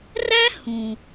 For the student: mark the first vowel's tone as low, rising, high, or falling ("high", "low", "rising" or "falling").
high